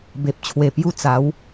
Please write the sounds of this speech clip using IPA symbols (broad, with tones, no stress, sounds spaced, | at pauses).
b e˨ p̚ t͡ɕʰ w e˨˩ p j u˧ t͡s a˨˦ w